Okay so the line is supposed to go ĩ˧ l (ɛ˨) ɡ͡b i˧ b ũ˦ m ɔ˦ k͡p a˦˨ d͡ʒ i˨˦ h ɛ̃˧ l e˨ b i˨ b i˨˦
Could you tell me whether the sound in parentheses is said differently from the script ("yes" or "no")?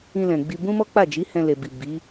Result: yes